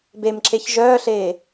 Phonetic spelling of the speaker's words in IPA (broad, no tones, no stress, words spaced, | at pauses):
bemǁeç ʒœːɬeː